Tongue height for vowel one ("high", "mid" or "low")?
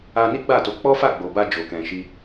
low